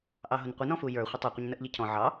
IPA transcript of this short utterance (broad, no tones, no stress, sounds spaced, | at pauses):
ʔ ɑ ɦ ʊ n qʷ ɪ n ɔ̃ f u j ə˞ χʷ ə tˤ ʌ qʷ ə ɲ n ə ʔ ʎ ɪ cʰ ɔ̃ ʕ ɑ